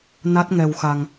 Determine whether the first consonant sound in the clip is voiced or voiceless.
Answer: voiced